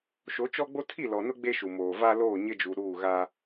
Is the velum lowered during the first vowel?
no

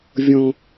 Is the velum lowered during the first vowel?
yes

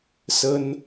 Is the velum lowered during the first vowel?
no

